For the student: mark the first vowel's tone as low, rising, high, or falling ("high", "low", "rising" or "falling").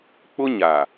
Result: high